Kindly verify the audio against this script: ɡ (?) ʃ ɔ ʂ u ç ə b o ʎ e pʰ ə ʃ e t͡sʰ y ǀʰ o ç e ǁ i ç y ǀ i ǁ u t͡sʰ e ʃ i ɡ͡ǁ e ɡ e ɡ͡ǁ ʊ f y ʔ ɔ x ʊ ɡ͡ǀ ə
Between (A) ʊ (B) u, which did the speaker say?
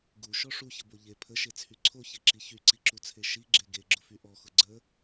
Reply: B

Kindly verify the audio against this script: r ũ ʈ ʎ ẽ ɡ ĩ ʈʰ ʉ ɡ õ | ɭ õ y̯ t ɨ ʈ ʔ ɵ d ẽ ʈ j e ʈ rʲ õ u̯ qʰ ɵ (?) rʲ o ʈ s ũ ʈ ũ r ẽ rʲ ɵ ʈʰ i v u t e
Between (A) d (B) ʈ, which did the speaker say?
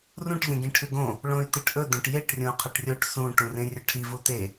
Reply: B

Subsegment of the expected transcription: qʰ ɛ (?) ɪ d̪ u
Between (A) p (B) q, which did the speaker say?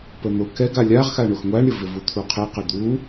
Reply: B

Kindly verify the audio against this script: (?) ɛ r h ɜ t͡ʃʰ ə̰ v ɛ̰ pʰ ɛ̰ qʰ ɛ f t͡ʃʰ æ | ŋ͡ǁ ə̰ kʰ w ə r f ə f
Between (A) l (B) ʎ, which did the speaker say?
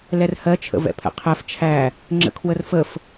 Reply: A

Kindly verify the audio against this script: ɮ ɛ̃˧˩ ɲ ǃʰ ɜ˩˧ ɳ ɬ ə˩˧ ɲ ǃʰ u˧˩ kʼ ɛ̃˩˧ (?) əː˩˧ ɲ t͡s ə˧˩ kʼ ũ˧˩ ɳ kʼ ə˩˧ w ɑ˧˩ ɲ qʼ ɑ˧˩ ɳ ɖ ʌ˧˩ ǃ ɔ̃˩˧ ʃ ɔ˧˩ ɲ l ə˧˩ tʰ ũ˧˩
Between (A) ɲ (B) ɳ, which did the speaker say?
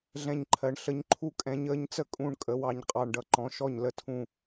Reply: A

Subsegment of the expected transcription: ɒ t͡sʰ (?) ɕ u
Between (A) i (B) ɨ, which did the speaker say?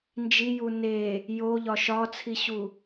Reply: A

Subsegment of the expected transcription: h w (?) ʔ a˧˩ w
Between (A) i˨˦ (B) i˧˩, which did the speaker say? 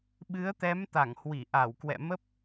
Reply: B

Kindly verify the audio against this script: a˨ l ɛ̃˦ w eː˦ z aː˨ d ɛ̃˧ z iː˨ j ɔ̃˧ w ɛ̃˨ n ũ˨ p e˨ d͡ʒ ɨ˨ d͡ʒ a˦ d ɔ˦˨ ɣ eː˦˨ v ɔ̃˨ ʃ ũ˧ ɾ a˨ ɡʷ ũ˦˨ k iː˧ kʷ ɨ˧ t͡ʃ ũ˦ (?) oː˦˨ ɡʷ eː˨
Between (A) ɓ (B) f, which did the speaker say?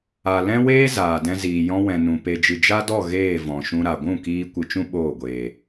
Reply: A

